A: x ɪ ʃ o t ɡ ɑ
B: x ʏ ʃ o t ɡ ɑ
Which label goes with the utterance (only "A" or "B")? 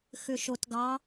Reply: B